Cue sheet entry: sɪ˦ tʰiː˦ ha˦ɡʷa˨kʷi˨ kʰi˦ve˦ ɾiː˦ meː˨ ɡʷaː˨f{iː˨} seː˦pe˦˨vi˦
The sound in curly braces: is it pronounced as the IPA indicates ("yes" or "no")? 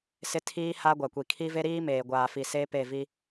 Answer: no